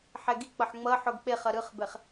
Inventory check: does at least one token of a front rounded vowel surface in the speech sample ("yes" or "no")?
no